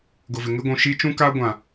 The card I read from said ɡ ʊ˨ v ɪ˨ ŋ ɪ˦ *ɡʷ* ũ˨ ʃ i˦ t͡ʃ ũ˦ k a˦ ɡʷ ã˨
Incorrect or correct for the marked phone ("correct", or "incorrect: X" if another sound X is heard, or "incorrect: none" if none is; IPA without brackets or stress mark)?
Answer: correct